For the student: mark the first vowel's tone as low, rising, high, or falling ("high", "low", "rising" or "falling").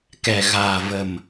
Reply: low